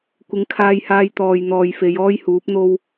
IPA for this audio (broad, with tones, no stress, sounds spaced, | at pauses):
kʷ ɪ˨ ŋ kʰ aː˧ j h aː˧ j t̪ ɔː˨ j n̪ ɔː˨ j f e˨˧ j ɔː˥ j h uː˨˥ p̚ n̪ o˥ w